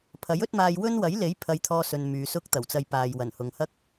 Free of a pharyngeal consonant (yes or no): yes